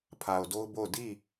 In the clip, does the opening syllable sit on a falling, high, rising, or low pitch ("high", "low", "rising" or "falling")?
low